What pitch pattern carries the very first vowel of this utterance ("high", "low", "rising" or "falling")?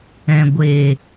low